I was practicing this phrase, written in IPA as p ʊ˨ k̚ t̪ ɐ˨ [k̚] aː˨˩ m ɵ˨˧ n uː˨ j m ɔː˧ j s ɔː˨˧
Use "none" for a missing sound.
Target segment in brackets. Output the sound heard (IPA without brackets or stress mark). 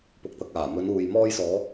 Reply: k̚